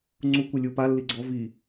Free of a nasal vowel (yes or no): yes